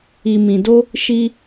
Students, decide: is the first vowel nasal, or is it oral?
oral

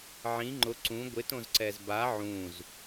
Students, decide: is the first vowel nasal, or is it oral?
nasal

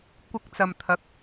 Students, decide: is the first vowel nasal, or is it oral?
oral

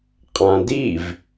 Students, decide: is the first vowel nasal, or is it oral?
nasal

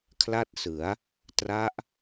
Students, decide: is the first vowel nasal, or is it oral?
oral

